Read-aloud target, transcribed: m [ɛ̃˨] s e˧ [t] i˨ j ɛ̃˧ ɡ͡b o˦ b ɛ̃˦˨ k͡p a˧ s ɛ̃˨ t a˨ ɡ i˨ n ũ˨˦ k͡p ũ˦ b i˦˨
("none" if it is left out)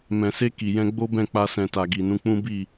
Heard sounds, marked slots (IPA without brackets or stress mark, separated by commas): ɛ̃˨, k